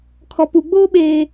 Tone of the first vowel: low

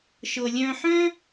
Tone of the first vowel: low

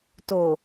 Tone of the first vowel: low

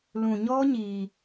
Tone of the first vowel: low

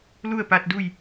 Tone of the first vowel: falling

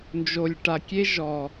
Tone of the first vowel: low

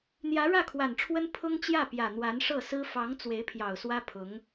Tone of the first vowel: rising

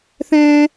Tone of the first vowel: high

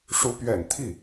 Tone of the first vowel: rising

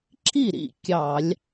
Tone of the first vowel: falling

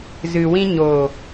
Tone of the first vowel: low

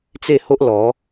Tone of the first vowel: falling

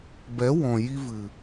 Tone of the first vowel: rising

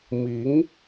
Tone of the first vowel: rising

